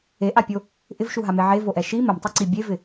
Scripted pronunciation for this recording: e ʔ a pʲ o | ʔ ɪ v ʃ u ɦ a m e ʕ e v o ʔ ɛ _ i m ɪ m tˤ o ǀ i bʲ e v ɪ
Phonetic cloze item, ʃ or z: ʃ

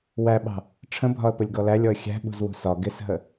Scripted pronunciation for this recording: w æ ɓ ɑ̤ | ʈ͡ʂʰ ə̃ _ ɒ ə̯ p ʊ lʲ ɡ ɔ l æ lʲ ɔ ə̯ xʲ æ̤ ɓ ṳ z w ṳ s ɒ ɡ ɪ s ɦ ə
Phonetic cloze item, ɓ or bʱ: bʱ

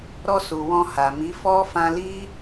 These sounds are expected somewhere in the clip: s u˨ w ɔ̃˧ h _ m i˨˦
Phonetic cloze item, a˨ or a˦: a˨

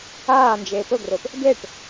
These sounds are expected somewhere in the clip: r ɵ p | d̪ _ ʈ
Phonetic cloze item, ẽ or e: e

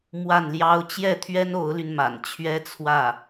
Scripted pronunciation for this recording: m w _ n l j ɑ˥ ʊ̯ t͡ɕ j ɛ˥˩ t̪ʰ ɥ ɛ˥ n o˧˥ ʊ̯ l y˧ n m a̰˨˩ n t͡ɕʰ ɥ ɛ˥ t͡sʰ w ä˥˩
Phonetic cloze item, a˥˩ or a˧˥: a˥˩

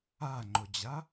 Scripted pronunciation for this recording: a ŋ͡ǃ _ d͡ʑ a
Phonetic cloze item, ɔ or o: o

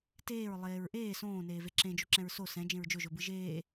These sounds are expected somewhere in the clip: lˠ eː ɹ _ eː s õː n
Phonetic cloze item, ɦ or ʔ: ʔ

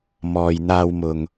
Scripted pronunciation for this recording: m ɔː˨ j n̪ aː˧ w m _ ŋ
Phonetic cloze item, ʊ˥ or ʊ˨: ʊ˨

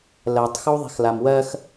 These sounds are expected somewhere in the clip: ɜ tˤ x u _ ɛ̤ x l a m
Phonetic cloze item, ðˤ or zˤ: ðˤ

